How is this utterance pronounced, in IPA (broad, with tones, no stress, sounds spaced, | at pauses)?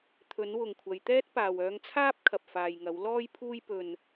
t̪ʰ ɵ˨˥ n w ʊ˨ ŋ kʷʰ ɐ˨˧ j t̪ ɛː˥ t̚ p aː˨ w œː˧ ŋ t͡sʰ aː˥ p̚ kʰ ɐ˨ p̚ f aː˨ j ŋ ɐ˨˥ w l ɔː˥ j pʰ uː˥ j p ɵ˧ n